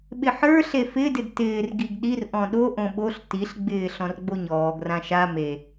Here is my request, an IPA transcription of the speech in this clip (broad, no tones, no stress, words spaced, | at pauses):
ɓɪħə˞ ɬefɪdɪd tɪːr ɡiɡɗir ʔɔ̃ɗoʔõ ɓoɬ tiɬɡ͡bɪː ɬɔ̃rɡ͡boɲɔːɡrã ʃa me